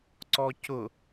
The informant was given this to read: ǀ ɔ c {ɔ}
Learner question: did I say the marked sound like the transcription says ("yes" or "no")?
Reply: no